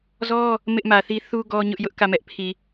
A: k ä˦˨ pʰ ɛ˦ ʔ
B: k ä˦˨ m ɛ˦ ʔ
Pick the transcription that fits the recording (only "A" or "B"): B